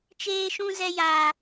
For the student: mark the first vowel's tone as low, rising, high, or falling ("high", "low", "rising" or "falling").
high